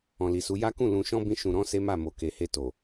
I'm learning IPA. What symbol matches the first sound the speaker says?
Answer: ɔ̃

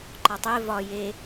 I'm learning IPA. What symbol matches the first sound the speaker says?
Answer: ǃ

